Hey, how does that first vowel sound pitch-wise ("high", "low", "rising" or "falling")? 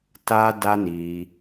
high